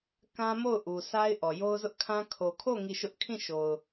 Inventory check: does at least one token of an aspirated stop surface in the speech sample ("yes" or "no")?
yes